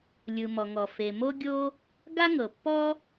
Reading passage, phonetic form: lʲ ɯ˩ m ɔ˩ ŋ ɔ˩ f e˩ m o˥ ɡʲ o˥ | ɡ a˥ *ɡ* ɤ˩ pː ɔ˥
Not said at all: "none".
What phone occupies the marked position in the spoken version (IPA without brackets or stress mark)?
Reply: ŋ